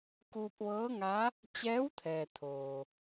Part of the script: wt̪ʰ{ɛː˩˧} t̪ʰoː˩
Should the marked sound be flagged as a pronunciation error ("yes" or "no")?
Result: yes